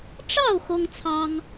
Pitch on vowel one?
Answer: falling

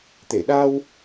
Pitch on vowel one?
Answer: low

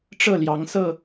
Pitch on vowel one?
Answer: falling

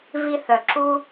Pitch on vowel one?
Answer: high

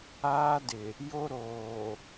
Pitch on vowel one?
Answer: high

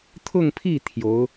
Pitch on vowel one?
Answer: falling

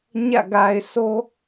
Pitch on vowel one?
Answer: falling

